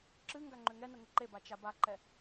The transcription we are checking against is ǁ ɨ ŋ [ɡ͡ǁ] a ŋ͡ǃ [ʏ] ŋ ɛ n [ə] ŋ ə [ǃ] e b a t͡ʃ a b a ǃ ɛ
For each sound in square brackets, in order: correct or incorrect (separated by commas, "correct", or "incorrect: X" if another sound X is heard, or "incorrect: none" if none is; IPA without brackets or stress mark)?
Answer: incorrect: ɡ, correct, correct, correct